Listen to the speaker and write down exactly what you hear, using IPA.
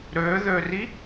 ɾøðøri

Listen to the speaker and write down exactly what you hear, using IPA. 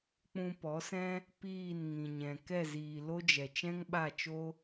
k͡pũ˧pɔ˨˦sɛ̃˦ | piː˦˨nŋĩ˨ɲɛ̃˨ kɛ˦˨ziː˨lo˦d͡ʒɛ˨ t͡ʃɛ̃˦ŋɓa˦˨t͡ʃo˦

